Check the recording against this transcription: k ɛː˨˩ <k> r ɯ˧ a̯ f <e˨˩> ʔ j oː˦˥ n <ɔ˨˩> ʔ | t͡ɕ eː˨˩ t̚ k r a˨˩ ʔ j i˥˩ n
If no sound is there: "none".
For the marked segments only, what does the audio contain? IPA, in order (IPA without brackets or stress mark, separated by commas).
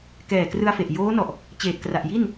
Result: k, e˨˩, ɔ˨˩